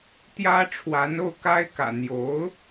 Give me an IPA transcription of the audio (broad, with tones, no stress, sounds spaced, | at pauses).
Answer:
t̪ j ä˥ ʈ͡ʂʰ w a˧˥ n o˥˩ ʊ̯ k a˥ ɪ̯ k ä̰˨˩ n̪ j o˧˥ ʊ̯